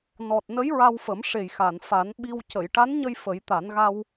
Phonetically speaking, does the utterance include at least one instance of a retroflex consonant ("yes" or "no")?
yes